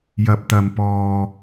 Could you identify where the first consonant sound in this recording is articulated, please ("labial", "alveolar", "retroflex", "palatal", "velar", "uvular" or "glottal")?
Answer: palatal